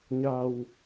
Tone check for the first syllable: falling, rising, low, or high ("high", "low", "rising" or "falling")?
low